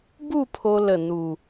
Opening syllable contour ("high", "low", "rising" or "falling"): falling